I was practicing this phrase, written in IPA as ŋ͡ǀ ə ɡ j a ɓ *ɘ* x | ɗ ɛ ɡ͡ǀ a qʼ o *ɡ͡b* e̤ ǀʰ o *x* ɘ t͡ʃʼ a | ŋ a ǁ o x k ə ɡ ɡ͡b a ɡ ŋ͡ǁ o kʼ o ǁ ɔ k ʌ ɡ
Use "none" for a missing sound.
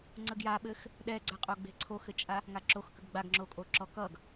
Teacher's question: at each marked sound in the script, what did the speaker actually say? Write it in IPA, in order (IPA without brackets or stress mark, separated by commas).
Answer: ɘ, ɡ͡b, x